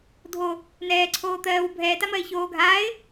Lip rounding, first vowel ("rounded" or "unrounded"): rounded